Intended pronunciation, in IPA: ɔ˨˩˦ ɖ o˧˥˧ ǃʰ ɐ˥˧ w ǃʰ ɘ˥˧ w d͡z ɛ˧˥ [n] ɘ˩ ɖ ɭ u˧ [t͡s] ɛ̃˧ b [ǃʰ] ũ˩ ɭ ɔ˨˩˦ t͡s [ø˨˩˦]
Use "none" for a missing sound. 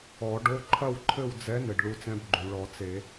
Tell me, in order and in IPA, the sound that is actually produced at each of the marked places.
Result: n, t͡s, ɡ͡ǃ, e˨˩˦

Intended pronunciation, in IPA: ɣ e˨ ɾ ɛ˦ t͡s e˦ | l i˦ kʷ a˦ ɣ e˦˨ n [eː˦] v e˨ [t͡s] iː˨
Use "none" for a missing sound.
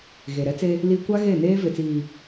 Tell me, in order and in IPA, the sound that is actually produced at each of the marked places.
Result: eː˦, t͡s

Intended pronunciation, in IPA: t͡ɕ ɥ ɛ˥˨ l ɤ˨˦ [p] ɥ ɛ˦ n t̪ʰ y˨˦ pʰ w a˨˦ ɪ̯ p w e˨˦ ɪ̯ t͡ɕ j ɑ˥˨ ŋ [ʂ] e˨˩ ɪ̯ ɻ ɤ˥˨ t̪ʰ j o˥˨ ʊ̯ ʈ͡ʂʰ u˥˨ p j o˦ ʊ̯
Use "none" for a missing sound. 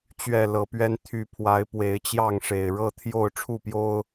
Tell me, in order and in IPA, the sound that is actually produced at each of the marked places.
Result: p, ʂ

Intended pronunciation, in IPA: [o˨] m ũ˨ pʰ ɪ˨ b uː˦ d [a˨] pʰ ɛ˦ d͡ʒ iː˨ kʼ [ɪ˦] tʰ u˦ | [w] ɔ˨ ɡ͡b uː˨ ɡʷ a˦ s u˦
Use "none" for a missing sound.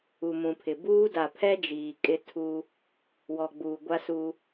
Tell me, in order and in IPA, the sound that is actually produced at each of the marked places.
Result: u˨, a˨, ɪ˦, w

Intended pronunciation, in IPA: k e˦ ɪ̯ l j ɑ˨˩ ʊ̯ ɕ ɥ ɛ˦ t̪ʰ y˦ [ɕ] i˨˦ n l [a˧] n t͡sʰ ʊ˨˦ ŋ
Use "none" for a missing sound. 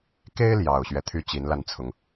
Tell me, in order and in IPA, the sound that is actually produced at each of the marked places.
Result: t͡ɕ, a˧

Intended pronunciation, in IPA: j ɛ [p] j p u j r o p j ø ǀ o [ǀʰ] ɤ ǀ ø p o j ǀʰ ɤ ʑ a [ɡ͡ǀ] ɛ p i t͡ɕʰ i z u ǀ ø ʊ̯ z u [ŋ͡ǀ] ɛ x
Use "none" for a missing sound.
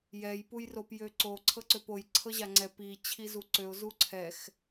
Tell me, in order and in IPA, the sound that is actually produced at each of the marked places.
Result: none, ǀʰ, ŋ͡ǀ, ǀʰ

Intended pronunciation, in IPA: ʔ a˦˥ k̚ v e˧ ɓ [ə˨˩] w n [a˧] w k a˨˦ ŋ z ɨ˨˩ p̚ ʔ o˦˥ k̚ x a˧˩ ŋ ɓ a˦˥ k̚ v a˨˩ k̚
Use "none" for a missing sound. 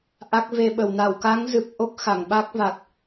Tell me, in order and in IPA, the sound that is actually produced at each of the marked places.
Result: ə˨˩, a˧˩

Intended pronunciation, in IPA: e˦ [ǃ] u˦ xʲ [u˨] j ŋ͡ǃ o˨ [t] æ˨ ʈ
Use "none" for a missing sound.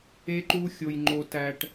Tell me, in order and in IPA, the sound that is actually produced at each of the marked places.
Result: ǃ, o˨, t

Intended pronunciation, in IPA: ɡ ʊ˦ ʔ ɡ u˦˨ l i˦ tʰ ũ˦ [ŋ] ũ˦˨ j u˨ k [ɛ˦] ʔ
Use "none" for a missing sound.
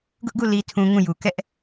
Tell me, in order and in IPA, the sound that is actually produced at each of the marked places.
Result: ŋ, ɛ˦

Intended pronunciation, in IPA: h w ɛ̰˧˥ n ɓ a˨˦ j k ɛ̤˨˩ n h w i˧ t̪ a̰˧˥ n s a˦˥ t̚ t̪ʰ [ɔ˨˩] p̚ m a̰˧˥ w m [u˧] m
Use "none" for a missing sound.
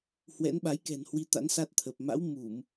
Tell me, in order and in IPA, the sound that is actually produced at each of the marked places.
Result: ə˨˩, u˧˩˨

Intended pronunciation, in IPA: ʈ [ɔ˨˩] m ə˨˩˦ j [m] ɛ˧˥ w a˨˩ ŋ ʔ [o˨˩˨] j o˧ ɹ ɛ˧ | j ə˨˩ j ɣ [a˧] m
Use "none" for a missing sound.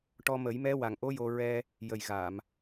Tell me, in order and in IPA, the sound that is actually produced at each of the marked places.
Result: ɔ˧, m, o˧˥, a˨˩˨

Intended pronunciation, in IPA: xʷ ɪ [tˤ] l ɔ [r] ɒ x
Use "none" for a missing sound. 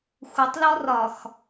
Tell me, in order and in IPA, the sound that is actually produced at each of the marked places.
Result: tˤ, r

